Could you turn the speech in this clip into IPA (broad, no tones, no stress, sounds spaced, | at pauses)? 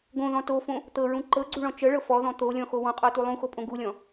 ɡ õ ð ɔ̃ t o f õ | t̪ ɤ ɹ ũ ǃ ɤ ɡ͡ǀ u ɭ ɔ̃ t͡ʃ ɤ ɭ ɤ f ɔ ð ɔ̃ t̪ o lʲ ɔ̃ x o w ɔ̃ qʼ ɔ t u lˠ ũ x o pʼ õ ɡ u lʲ ɔ̃